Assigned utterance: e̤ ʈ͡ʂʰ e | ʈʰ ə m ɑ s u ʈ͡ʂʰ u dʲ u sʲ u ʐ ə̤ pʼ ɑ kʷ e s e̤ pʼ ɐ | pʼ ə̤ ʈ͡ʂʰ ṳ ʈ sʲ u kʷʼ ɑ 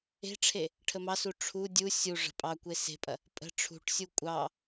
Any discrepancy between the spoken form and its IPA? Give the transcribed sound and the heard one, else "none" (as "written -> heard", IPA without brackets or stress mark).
none